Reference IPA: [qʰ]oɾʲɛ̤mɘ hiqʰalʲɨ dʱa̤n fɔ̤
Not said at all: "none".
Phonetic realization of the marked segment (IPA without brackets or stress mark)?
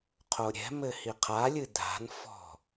qʰ